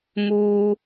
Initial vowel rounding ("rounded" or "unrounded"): rounded